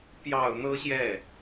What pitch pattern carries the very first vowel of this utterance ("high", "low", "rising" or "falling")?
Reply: low